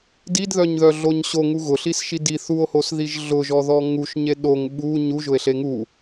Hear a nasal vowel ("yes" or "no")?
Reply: no